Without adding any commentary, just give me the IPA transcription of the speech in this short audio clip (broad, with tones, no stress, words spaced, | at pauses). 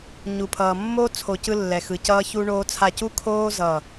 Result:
ɲu˨pʰʌː˨ mːoː˦t͡sʰo˨ cɯ˦lːɛ˨xɯ˨ cʌː˦çu˦ɳoː˦t͡sʰa˦˨ cu˦kʰoː˦ zʌː˦˨